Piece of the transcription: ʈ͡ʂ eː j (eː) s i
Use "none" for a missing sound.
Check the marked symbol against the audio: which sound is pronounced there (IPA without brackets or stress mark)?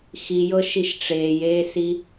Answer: eː